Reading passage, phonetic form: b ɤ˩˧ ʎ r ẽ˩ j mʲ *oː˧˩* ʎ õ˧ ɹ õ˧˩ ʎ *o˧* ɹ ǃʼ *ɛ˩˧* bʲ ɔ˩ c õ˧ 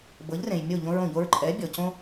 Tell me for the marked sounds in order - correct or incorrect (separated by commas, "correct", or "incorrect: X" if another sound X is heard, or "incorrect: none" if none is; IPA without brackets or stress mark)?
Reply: incorrect: o˧˩, correct, correct